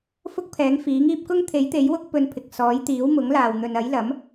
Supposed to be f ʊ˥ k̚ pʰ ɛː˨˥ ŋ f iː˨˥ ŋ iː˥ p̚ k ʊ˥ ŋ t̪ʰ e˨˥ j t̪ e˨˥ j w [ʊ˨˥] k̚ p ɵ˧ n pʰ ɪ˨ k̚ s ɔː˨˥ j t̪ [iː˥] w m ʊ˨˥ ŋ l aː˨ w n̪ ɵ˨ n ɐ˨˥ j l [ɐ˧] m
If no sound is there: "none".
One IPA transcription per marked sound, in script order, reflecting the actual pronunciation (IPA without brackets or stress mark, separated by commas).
ʊ˥, iː˨˥, ɐ˨˥